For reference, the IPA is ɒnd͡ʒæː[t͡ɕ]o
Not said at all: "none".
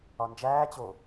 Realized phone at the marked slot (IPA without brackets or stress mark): t͡ɕ